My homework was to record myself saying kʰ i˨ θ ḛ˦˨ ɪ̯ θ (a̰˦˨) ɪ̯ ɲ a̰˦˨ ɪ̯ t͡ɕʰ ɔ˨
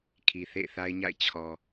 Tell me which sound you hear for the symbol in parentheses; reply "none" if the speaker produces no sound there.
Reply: a˦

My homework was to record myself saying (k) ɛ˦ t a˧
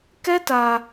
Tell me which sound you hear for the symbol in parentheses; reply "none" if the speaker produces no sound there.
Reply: k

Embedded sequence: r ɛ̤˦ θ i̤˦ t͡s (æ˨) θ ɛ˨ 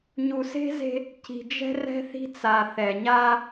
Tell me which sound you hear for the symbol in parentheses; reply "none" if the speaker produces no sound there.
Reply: a˨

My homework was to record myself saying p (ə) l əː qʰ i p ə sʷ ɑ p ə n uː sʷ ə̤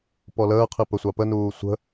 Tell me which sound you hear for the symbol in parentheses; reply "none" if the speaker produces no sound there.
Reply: ɔ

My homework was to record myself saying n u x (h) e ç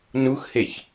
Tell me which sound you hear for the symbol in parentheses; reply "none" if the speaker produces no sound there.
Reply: h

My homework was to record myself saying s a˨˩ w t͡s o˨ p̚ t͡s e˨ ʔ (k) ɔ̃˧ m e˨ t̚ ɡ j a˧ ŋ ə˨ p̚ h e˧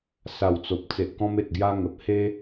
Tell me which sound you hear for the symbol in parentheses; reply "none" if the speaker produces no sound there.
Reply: k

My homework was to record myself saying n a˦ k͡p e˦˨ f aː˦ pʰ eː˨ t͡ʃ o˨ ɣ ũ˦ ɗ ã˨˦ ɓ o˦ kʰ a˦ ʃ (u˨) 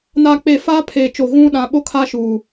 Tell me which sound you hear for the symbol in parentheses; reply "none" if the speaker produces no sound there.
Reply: u˨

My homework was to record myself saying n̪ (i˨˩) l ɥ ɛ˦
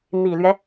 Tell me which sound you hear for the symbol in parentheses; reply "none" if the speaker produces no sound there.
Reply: i˨˩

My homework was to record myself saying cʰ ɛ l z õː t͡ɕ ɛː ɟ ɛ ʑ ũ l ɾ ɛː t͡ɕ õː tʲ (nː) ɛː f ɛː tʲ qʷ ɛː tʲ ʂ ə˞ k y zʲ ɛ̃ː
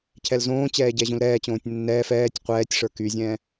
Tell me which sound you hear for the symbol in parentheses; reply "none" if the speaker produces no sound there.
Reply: nː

